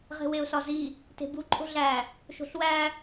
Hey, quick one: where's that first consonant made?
uvula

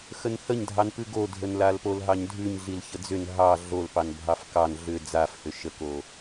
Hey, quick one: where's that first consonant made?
velum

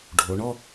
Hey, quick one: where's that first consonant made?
retroflex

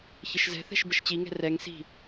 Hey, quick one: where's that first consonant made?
palate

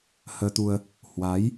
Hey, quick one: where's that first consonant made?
throat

